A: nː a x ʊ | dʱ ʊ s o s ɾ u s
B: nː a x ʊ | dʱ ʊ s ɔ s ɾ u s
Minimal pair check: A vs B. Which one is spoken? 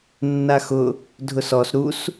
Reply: B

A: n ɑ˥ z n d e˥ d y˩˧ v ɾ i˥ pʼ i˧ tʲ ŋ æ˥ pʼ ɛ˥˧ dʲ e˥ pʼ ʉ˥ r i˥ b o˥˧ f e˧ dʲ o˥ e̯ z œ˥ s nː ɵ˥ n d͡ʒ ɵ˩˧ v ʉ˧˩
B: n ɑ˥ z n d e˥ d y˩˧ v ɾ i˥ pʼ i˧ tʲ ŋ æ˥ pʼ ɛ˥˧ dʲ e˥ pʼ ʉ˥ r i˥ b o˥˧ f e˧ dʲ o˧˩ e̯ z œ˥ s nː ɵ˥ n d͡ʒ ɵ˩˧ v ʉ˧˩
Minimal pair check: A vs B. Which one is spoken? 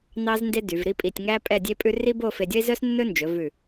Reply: A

